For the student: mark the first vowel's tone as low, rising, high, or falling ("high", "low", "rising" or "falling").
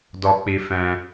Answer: high